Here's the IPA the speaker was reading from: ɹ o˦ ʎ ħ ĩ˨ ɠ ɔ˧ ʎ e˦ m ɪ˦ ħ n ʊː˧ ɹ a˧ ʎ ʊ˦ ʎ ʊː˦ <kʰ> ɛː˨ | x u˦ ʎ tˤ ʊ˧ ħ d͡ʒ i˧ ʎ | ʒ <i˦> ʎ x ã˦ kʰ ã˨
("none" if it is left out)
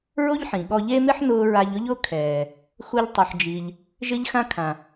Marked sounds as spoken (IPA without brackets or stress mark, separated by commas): kʰ, ɪ˦